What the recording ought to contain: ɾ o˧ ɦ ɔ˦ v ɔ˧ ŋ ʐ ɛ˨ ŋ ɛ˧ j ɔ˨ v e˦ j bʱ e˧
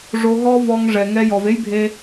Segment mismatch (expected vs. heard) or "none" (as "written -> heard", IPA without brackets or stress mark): ɾ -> ʐ